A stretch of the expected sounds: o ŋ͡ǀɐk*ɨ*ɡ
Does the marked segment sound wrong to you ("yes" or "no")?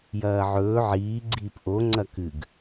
no